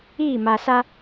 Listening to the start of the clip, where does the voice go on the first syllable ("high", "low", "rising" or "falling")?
falling